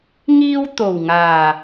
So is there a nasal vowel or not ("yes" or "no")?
no